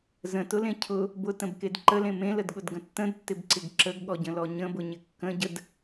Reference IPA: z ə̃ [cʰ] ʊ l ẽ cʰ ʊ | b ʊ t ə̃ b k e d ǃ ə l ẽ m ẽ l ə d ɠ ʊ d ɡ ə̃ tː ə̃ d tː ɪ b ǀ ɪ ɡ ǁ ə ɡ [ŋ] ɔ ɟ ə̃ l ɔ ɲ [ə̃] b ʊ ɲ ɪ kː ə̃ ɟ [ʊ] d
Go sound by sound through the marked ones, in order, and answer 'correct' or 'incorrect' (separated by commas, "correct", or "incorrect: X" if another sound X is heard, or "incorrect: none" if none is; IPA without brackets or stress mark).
incorrect: t, incorrect: ɠ, correct, incorrect: ə